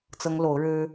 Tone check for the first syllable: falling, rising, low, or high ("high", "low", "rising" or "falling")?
high